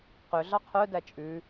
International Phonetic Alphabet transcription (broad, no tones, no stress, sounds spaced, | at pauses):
q ø ɮ ɑ qʰ œ d æ t͡ʃʼ ʉ